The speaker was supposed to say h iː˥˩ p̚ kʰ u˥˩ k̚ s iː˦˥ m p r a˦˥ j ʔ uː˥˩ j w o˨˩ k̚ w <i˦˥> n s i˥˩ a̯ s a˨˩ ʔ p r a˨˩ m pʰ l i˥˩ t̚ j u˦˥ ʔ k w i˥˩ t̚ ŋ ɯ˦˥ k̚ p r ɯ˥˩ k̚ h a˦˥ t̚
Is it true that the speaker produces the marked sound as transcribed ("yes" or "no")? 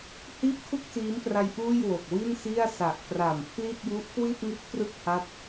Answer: no